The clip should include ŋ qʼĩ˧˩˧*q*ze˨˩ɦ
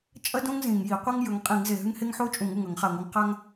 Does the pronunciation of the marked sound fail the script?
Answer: yes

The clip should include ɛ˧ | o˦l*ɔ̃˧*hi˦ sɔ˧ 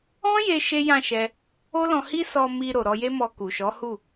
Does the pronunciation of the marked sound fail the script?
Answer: no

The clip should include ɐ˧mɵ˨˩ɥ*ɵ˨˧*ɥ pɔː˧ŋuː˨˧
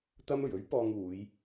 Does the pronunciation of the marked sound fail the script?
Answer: yes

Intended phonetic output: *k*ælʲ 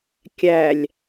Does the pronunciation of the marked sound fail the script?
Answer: yes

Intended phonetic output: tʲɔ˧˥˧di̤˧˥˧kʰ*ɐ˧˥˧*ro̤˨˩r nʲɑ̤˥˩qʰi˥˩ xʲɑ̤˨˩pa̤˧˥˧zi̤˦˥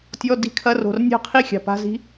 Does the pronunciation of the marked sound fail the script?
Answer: no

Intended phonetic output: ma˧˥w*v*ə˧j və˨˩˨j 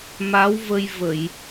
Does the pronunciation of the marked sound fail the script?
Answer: no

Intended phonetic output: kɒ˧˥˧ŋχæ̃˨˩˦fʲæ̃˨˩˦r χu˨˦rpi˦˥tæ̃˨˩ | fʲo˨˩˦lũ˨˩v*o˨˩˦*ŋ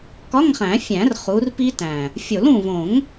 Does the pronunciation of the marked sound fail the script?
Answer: yes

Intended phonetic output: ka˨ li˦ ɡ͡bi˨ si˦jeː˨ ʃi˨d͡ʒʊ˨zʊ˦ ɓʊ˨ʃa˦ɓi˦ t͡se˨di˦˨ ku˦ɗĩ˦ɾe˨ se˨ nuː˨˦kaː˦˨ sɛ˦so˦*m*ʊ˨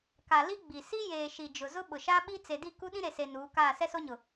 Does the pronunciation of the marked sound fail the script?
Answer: yes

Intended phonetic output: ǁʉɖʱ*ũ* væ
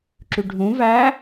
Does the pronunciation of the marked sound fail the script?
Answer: no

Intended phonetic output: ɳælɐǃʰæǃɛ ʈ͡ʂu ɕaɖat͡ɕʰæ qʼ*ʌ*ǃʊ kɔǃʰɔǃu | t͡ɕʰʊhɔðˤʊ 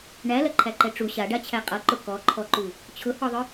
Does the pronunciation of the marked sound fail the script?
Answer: no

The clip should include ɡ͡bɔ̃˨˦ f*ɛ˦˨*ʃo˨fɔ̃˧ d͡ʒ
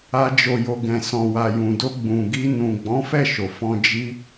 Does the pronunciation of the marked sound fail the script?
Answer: no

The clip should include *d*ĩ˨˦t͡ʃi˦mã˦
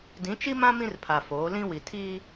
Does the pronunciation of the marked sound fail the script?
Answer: no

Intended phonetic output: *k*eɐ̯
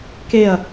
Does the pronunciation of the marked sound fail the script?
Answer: no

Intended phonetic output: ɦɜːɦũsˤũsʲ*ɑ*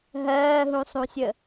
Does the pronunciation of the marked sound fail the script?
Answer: yes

